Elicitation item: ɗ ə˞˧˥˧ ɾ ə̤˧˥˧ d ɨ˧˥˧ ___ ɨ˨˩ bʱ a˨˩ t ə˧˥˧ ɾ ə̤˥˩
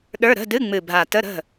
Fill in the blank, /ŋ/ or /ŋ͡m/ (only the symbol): ŋ͡m